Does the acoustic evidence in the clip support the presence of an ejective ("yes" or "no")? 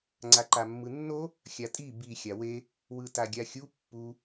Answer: yes